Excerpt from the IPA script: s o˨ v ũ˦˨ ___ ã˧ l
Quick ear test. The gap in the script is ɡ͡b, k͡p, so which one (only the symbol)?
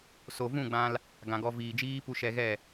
ɡ͡b